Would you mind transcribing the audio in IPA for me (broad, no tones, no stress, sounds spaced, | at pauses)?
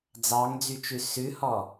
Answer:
d͡z ɑ ŋ d͡z y t͡ʃ ʉ s ʉ h ɔ